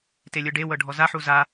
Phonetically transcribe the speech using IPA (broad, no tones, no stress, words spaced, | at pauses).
telʲɯɖewɤ ɖʱɔzaħu za